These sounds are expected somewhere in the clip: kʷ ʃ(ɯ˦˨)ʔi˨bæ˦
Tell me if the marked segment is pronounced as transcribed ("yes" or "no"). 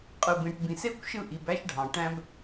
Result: yes